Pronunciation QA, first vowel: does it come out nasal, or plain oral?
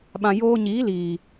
nasal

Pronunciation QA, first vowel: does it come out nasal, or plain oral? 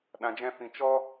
nasal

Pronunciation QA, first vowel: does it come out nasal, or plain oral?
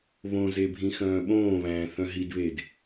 nasal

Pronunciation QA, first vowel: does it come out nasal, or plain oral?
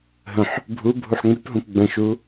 nasal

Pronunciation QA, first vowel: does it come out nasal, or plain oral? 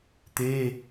oral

